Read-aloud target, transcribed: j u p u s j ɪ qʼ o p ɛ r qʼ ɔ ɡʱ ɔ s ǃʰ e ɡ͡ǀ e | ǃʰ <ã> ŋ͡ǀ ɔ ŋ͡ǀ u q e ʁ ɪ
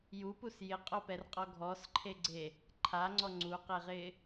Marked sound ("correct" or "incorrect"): incorrect